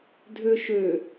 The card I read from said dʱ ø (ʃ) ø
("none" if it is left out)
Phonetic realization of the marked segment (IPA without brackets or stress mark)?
ʃ